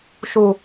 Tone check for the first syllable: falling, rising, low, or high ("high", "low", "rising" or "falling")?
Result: low